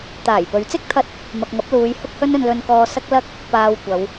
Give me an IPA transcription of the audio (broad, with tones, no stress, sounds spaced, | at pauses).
t̪ aː˨˩ j p ɵ˨˧ ɥ t͡s ɪ˥ k̚ t̪ʰ ɐ˥ t̚ | m ɐ˨ k̚ ŋ ɐ˨˥ p̚ l uː˨˧ j h ʊ˥ k̚ h ɵ˥ n ɵ˧ n l ɵ˧ n k ɔː˧ s ɐ˥ k̚ l ɐ˥ k̚ | p aː˧ w kʷ ɐ˨˧ w